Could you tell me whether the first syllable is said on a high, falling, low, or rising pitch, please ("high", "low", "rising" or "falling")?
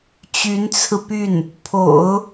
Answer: rising